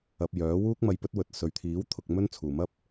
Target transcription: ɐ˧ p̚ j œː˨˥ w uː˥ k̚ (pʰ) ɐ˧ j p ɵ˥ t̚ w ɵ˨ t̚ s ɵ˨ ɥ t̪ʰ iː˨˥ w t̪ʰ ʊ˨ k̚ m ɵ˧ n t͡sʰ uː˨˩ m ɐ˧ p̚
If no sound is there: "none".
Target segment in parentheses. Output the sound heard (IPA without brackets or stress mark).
m